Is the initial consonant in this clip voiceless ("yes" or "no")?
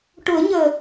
yes